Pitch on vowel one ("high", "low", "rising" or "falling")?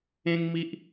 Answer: high